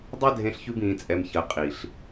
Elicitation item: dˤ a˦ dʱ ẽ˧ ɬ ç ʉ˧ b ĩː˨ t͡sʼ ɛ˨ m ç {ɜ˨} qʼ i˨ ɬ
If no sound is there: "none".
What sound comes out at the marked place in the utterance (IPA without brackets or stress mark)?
ɜ˨